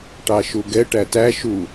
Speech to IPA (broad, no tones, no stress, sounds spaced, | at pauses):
ʈ ɑ ʃ u ɡ ɛ ʈ æ t æ ʃ u